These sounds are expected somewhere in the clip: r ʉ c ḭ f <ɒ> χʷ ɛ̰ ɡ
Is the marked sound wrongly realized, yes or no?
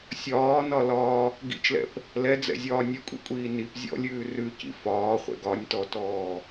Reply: yes